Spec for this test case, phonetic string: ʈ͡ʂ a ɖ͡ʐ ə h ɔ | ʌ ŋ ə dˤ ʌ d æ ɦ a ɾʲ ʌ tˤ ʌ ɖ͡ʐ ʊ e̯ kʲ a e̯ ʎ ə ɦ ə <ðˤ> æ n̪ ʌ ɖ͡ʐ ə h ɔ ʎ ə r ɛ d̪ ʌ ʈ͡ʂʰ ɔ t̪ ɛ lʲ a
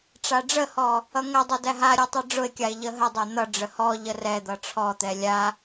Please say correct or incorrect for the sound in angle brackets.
incorrect